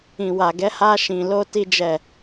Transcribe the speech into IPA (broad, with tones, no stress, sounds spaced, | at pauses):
ĩ˨ w a˨ ɡ ɛ˨˦ h a˧ ʃ ĩ˨ l o˧ t i˦ d͡ʒ ɛ˦˨